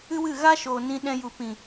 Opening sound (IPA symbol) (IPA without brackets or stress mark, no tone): ɨ